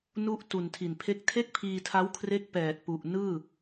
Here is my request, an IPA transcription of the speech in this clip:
nu˥˩ʔtu˨˩ntʰi˨˩npʰe˥˩k̚ tʰe˥˩k̚pʰiː˧tʰa˦˥wkʰre˦˥k̚ pɛː˨˩t̚pu˨˩ʔ nɯː˥˩

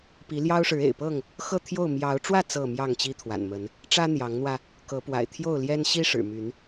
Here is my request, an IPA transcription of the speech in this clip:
pi˨˦ljɑ˦ʊ̯ʂɻ̩˨˦ ḛ˨˩ɪ̯pɤ˥˨ŋ | xɤ˥˨t̪ʰjo˥˨ʊ̯ mjɑ˨˦ʊ̯ʈ͡ʂwä˥˨ t͡sɤ˥˨ mjɑ˥˨ŋt͡ɕi˦ t̪ʰwa̰˨˩nmə˨˦n | ʈ͡ʂä˦n̪jɑ˨˦ŋn̪wä˧ | kɤ˨˦pwa̰˨˩ɪ̯ t̪ʰjo˥˨ʊ̯ljɛ˦n ɕi˦ ʂɻ̩˨˩my˨˦n

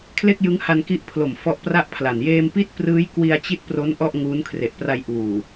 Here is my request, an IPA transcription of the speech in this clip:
kʰle˥˩k̚jɯ˦˥ŋha˧nki˦˥ʔ pʰlo˨˩m fɔ˦˥ʔpra˥˩ʔpʰla˨˩n jeː˧mpi˥˩t̚prɯː˦˥j kwi˧a̯t͡ɕi˦˥t̚pro˦˥n ʔɔ˥˩ʔŋuː˦˥n kʰre˨˩ʔpra˧j ʔuː˨˩

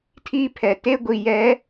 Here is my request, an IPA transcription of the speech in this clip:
tʰiː˦pʰɛ˨ te˦ ɡʷi˨jɛ˨˦

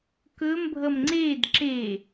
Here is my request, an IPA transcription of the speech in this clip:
kɵmbʱʌm ŋ͡ǀed ǁe

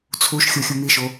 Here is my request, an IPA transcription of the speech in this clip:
t͡sʰuʃxʲo xʲumiʃo

